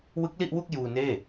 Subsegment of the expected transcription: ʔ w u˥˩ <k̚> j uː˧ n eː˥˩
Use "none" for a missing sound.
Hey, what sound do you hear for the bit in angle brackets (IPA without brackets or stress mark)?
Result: k̚